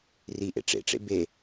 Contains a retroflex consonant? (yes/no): yes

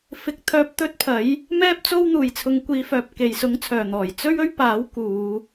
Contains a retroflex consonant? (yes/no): no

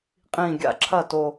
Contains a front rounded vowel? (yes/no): no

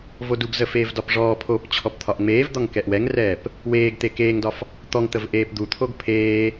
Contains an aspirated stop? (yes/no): yes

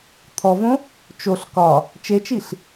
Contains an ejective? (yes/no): no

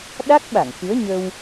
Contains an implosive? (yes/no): yes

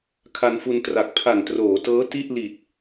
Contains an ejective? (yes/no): no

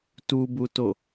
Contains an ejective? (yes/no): no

